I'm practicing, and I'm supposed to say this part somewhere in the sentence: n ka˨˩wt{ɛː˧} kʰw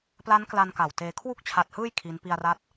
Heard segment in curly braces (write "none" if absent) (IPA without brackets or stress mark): eː˧